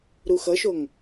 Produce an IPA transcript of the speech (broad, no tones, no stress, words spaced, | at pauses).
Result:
ɾuxʌʃoŋ